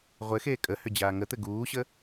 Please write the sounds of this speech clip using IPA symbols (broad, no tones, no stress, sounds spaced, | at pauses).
ʁʷ ɘ x eː kʼ ə h ʏ d͡ʑ aː ŋ ə t̪ ɘ ɡ uː ɕ ə